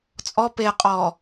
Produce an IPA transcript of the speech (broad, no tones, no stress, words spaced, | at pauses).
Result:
t͡sʼɔ peqʼɔː